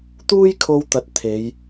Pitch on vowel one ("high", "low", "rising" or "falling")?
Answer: high